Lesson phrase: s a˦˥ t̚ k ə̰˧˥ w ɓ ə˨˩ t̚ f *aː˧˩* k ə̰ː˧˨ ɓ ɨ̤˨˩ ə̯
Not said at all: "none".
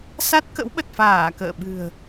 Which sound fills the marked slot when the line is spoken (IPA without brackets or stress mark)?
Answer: aː˧˩